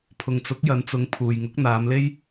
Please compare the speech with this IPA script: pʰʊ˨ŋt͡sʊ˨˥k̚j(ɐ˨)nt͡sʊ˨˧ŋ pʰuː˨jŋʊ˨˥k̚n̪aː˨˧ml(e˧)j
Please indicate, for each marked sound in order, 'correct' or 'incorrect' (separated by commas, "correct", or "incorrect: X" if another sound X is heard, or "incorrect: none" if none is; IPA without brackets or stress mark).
incorrect: ɐ˨˧, incorrect: e˥